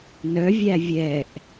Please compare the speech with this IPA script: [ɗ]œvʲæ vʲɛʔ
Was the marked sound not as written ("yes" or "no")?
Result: yes